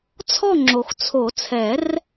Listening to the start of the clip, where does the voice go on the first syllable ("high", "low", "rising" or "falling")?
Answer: falling